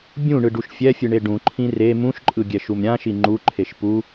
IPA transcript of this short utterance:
bʲũɳɯɖuʃ fʲɛfʲɯɳe ɖũǃʰĩ re mũʃǃʼɯɡʲɛʃum ɾʲãʃi ŋ͡ǃuǃʰeʃ pu

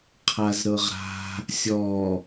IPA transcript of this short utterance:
qʰazɾɤʁɾa̤ | sʲɔ

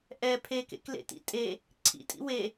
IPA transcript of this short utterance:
ʔɛ pʰekḛklḛtḭ tʼe | ǀʰḭtʼḭ we

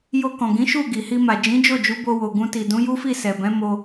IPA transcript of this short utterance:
jo˧kɔ̃˨ɡĩ˨˦ ʃu˦˨ɡi˨hi˧ma˨ d͡ʒĩ˨˦d͡ʒo˦˨d͡ʒu˨˦ bo˧wo˨ ɡũ˧ti˨ dũ˨˦ju˦fi˦˨ sɛ˨bɛ̃˨˦mo˧

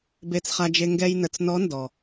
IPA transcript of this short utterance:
be˧t͡sχa˧d͡ʒe˧ ŋɡɛ˧jnə˩t͡s nɔ˧˥ndɔ˩

